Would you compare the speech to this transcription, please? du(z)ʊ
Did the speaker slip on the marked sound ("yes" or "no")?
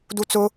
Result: yes